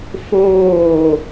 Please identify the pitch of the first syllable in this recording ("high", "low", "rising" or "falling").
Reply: falling